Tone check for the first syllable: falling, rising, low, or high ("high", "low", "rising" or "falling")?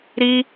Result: high